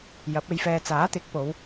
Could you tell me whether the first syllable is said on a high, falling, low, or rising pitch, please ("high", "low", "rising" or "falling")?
rising